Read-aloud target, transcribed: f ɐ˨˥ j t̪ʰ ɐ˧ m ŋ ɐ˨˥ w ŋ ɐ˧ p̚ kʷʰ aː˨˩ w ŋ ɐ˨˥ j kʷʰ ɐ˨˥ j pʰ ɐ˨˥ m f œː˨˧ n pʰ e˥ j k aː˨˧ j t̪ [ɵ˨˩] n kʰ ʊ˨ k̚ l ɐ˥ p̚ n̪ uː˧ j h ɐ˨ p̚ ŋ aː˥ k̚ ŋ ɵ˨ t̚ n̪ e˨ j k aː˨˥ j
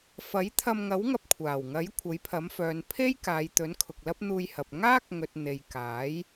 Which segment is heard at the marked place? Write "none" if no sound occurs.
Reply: ɵ˨˥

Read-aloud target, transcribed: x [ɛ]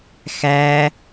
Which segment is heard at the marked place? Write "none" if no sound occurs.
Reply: æ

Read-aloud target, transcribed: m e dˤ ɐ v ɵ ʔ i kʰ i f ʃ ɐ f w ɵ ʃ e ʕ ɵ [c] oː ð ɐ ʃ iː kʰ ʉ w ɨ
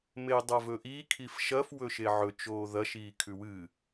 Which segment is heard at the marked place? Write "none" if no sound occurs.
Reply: t͡ʃ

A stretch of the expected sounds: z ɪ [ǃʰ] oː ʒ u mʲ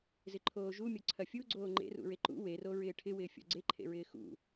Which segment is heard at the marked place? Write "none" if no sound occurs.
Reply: ǃʰ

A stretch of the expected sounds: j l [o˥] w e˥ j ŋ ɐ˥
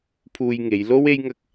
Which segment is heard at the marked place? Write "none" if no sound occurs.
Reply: o˥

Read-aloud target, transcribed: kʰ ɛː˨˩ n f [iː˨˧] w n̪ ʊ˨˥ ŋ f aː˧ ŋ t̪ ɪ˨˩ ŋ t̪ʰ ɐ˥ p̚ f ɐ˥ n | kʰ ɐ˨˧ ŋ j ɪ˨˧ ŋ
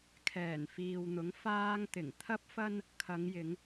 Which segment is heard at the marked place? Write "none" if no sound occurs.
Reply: iː˨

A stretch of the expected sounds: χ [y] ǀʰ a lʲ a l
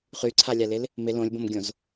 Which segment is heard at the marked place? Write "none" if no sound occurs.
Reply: y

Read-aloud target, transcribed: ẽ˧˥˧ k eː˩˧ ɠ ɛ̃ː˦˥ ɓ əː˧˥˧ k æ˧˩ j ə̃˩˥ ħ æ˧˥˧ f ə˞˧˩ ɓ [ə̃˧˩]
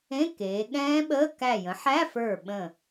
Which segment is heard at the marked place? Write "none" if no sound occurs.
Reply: ə̃˧˩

